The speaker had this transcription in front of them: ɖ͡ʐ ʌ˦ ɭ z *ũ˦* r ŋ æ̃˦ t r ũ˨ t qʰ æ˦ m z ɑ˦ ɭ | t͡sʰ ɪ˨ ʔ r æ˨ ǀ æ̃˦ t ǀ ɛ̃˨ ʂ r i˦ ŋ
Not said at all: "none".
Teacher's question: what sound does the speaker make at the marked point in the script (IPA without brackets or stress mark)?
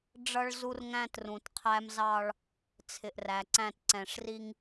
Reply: u˦